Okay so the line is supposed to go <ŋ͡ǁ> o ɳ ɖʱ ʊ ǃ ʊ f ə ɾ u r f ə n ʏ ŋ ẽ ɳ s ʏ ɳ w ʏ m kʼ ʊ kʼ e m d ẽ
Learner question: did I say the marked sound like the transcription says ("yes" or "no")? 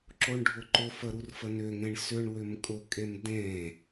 no